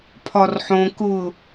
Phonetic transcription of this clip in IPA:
pʰ ɒ r ħ õ k ʊ

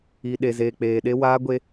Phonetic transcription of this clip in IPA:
i˨ ɗ e˨ z eː˨ k͡p eː˨ ɗ e˦ w aː˦ ɡʷ e˦

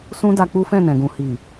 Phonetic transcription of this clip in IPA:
s ũ˦ d a˧ k͡p u˦ f ɛ̃˦˨ n ɛ̃˨ ɡ ũ˨ h i˨

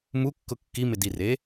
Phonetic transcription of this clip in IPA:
m u kː ʊ kː i m ɪ d i r e

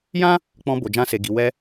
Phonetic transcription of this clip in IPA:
j ã˦ | k͡p ɔ̃˧ b o˨ d͡ʒ ã˧ s e˨ ɡ i˨ w ɛ˧

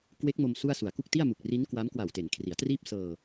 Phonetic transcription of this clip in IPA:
k w e˦˥ k̚ m o˧ m s u˥˩ a̯ s u˨˩ a̯ k u˥˩ k̚ t i˥˩ a̯ m u˨˩ k̚ r iː˦˥ n k w a˦˥ m k w a˨˩ w t e˩˦ n kʰ r i˩˦ a̯ t r iː˥˩ p̚ s ɤː˧

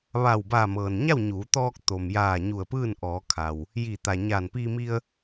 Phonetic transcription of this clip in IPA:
ʋ a˧˩ w b aː˧˩ m ɤː˩ n ɲ a˥˨ w ɲ uː˩˧ t̪ ɔː˧ k̚ t̪ o˩ m j aː˧˩ ɲ u˧˩ ə̯ p ɯː˥˨ n ʔ ɔː˩˧ kʰ a˩ w | j i˧˩ t̪ a˩ ɲ aː˧˩ n p i˧ m i˧ ə̯

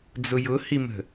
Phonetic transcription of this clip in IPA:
d͡z ʊ j ʊ h i m ə̤

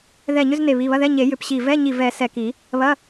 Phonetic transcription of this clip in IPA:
ð ɛ˧˩ ɲ ʏ˧˥˧ z n e˧˩ β i˩˧˩ β ɐ˧˥˧ ð ɛ˧˥˧ ɲ e˨˩˦ j ʏ˧˩ p ɕ i˧˩ v ɛ˧˥˧ ɲ i˧˩ v ɛ˨˩˦ s ɛ˧˩ k i˨˩˦ | β ɐ˧˥˧

